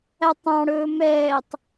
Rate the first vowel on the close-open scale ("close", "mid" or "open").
open